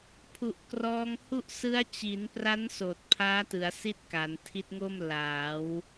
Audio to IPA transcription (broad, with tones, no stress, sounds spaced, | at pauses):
pʰ u˨˩ ʔ k r ɔː˧ ŋ h u˥˩ ʔ s ɯ˦˥ a̯ t͡ɕ i˩˦ n p r a˦˥ n s oː˨˩ t̚ pʰ aː˦˥ t ɯ˩˦ a̯ s i˥˩ t̚ k a˩˦ n tʰ i˦˥ t̚ ŋ o˥˩ m l aː˩˦ w